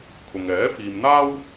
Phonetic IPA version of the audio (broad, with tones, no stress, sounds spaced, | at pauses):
kʰ ʊ˨ ŋ ɛː˨˥ f iː˨ m n̪ aː˥ w